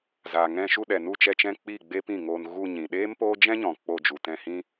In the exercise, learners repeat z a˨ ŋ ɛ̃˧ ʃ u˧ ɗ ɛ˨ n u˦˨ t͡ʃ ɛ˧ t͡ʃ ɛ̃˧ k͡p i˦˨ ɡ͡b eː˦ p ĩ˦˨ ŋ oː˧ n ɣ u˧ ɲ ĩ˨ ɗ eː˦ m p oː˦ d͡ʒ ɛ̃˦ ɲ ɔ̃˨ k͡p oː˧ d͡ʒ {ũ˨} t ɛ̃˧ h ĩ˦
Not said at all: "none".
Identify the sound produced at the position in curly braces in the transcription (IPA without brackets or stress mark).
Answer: u˨